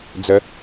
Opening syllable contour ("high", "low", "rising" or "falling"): rising